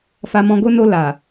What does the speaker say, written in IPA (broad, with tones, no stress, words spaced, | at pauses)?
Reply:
fa˧mɔ̃˧ɡo˦ no˧ la˨